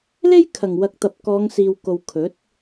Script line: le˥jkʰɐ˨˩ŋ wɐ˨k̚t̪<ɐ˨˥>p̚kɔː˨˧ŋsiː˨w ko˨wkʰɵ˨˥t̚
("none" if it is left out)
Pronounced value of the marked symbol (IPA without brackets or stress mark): ɐ˨